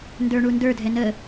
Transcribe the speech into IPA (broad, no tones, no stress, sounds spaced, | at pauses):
n d ə˞ ɳ u n d ə˞ dʱ ɛ n ə